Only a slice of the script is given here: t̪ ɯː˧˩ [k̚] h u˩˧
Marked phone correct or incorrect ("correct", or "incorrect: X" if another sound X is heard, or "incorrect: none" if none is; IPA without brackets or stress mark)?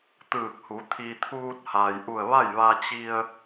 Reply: correct